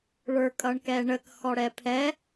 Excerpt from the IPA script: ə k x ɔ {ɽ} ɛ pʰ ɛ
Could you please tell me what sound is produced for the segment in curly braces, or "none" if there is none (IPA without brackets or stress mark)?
ɽ